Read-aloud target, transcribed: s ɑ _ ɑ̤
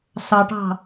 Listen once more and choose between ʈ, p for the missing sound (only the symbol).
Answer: ʈ